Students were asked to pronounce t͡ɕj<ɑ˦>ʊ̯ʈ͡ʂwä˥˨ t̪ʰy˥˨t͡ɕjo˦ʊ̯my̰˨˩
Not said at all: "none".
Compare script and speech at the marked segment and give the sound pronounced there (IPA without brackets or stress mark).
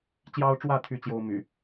ɑ˦